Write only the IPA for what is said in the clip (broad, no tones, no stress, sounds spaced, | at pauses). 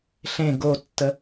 ɬ ẽ ɡ o tː ə